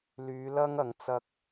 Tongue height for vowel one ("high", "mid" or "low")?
high